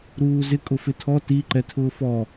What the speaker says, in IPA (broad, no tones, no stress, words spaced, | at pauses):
ɾuːzɪ kʼʊfɪtʰɔ ti ǃɛtʰʊːfɔ